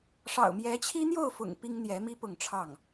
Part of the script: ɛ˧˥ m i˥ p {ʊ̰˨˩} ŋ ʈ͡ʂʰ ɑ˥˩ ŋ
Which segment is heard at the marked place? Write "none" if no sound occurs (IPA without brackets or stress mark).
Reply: ʊ˥˧